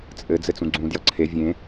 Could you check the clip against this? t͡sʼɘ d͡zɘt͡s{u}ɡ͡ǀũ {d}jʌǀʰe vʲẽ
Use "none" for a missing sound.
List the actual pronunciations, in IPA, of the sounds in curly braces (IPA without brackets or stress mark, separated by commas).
ũ, d